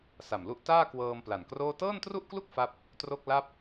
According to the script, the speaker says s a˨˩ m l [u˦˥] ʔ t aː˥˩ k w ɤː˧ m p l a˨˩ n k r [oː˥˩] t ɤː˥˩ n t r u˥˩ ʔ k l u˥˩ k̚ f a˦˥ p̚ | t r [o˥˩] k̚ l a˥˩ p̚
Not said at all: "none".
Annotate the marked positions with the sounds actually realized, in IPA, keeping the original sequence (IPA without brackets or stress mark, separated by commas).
u˥˩, oː˥˩, o˥˩